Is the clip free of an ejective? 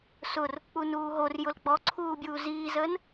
yes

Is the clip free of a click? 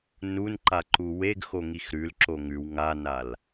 no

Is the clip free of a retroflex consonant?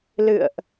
yes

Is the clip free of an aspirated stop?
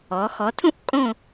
no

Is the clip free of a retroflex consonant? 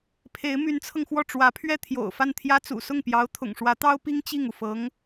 no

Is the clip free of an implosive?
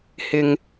yes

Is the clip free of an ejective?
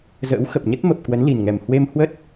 yes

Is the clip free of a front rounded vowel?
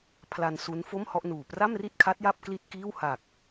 yes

